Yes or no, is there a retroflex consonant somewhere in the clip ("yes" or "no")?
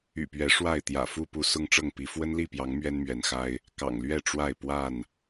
yes